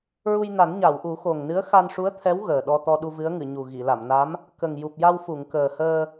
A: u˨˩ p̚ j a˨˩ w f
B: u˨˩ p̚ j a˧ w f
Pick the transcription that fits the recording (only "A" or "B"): B